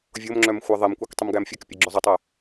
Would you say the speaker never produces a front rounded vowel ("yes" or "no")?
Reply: no